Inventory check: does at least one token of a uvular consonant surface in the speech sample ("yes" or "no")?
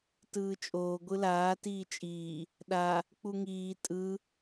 no